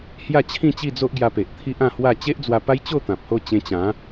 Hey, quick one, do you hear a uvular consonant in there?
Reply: no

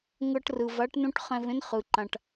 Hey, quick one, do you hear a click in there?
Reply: yes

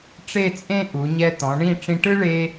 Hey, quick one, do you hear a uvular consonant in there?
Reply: no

